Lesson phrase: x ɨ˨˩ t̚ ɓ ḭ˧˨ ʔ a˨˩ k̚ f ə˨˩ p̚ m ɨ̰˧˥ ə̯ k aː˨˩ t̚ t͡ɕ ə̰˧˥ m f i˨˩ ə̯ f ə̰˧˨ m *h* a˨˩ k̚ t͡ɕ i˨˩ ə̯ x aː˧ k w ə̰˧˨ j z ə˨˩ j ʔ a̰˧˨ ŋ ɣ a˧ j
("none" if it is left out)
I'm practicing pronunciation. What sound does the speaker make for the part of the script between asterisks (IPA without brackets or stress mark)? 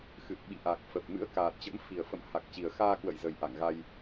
h